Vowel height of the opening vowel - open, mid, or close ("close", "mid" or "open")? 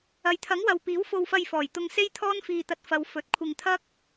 open